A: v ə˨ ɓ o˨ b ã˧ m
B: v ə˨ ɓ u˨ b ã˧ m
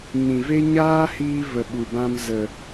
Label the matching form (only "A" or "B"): B